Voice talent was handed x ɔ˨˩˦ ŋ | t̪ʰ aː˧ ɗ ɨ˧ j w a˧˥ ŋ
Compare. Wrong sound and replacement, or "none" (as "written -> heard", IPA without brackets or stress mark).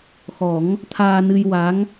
ɗ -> n